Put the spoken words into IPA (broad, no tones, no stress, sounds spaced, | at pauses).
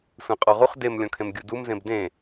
sʷ ẽ qʼ ɔ ʁ u χ d e m lʲ ɔ̃ kʰ ẽ m ɡʲ u d u m z ẽ b d ẽ